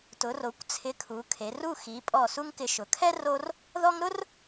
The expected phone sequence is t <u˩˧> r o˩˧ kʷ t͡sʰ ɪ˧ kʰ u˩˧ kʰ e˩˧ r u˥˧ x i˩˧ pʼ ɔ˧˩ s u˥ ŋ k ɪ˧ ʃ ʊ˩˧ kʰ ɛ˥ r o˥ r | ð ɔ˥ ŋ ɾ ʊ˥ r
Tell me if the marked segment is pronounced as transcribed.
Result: no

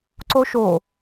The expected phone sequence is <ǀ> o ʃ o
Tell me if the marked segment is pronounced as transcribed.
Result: yes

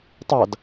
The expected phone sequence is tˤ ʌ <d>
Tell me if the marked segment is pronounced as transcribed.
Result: yes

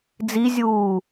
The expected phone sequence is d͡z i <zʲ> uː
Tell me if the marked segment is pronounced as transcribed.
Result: yes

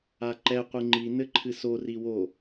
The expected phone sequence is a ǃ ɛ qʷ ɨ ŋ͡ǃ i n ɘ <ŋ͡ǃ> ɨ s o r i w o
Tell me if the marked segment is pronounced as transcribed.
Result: no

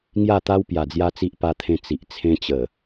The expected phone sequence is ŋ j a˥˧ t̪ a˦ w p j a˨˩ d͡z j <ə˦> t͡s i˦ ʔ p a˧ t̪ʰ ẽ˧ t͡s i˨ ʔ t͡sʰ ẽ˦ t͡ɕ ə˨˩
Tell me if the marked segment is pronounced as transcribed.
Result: no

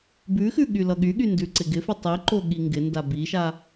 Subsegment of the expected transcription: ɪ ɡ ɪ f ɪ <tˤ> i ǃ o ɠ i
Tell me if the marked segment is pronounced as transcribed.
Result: yes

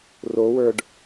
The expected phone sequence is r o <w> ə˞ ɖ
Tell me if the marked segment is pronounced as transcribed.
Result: yes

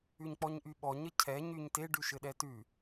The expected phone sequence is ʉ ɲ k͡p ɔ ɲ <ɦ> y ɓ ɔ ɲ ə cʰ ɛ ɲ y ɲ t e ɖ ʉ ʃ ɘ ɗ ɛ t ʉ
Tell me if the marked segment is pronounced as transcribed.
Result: no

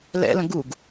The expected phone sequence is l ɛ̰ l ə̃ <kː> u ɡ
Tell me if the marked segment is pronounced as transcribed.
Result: no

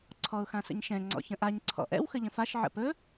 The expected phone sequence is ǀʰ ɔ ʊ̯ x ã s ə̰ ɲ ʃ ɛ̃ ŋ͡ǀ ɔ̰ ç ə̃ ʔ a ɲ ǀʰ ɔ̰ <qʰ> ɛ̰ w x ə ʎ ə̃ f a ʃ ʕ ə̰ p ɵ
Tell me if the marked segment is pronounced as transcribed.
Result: no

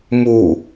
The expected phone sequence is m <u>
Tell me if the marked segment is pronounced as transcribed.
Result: yes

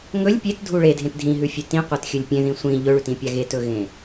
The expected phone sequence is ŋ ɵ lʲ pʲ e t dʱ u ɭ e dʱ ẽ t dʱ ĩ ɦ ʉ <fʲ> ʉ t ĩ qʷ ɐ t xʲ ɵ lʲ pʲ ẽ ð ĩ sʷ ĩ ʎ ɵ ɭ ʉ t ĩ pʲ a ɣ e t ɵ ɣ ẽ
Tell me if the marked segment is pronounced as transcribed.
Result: yes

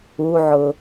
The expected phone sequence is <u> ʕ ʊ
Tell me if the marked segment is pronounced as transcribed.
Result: yes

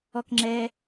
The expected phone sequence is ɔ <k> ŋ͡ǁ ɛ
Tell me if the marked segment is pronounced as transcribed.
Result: yes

